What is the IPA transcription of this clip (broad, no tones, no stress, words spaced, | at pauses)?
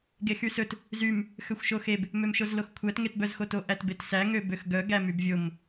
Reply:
ɡexysɵt | zym | xøxʷʃoxeb | mømʃozloxkʷʰæt ŋetbœzxoto ʔætbetsæ ŋøbøxɡœ ɡæmybvʲom